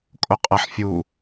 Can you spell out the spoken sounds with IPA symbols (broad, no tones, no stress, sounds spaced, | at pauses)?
kʼ o qʼ ɐ ħ fʲ u